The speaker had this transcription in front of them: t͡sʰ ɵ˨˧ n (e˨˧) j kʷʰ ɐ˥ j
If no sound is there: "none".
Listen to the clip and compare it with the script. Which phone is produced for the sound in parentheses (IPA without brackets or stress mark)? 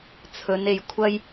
e˨˧